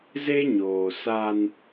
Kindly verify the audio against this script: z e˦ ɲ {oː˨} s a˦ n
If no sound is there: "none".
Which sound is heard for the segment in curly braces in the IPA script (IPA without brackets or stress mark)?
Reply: oː˨